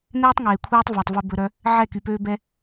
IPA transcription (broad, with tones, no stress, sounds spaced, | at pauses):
n ɛː˦ tˤ ŋ eː˨ kʷʰ ɛː˦ tˤ v æ˨ tˤ v ɵ˧ b ɵ˧ ɾ œ˦ | ʕ ɛ˦˨ k y˨ p øː˦ b ɛ˦